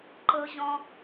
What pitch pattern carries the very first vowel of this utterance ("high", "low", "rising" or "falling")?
low